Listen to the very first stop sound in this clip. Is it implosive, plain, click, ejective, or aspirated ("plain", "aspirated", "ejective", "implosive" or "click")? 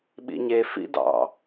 implosive